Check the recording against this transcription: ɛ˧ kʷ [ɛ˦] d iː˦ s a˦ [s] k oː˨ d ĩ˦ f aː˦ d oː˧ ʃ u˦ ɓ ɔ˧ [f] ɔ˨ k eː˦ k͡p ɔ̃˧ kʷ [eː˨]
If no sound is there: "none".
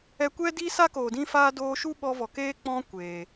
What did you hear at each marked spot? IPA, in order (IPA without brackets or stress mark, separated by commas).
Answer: ɛ˦, none, v, eː˨